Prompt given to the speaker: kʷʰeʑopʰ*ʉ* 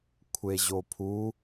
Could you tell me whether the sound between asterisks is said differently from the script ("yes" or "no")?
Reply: yes